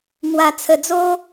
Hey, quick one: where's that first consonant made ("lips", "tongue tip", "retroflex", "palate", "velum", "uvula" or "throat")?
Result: velum